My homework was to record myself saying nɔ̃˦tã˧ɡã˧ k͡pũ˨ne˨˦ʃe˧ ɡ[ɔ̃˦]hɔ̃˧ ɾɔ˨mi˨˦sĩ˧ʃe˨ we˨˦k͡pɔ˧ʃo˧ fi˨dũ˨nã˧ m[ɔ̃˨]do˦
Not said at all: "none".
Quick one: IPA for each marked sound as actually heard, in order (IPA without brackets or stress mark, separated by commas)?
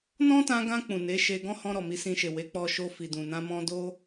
ɔ̃˦, ɔ̃˧